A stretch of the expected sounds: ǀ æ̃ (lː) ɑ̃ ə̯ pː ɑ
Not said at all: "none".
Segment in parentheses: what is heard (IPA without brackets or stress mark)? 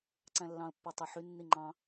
lː